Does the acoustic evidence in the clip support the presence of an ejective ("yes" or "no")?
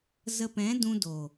no